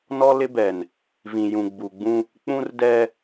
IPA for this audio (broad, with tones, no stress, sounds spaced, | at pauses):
n ɔ˦ l ɪ˦ b ɛ˨ n | v ĩ˨ j ũ˨ ɡ͡b u˨ ɡ͡b ũ˦ | k͡p ũ˦ r d ɛ˦